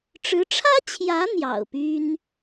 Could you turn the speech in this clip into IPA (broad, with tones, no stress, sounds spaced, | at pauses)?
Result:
ʈ͡ʂ ɻ̩˧˥ ʈ͡ʂʰ ä˥ t͡ɕʰ j ä˧˥ n̪ j ɑ̰˨˩ ʊ̯ p y˥ n